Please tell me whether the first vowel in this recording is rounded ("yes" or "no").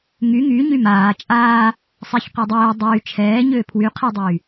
yes